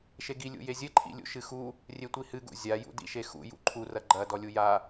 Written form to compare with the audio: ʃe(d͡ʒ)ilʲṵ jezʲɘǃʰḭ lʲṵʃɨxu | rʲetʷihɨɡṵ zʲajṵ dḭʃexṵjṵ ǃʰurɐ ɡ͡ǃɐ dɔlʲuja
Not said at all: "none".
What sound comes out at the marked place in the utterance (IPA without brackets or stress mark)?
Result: ɡ